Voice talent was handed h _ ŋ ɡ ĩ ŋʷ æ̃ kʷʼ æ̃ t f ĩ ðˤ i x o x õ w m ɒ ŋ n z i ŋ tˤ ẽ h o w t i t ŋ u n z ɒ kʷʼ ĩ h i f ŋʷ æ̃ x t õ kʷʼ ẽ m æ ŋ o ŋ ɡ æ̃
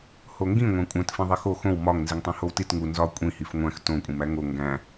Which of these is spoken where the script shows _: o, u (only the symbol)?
o